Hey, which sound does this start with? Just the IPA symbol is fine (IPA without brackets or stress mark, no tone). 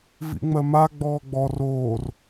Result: v